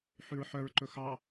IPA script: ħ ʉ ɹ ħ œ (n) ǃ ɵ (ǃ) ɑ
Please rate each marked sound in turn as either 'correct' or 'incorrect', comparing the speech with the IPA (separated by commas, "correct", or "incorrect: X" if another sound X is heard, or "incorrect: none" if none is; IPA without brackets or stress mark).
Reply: incorrect: ɹ, incorrect: x